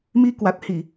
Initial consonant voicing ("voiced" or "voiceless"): voiced